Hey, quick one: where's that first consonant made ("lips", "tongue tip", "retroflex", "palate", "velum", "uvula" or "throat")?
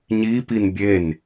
palate